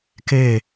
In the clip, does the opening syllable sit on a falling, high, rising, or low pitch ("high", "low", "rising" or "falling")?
falling